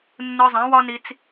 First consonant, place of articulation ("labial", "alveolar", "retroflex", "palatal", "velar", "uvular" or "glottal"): alveolar